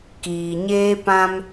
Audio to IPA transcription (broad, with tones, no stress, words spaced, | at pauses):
kiː˨ɲeː˦pã˦m